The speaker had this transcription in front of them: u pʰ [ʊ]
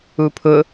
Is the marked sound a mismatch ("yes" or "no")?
no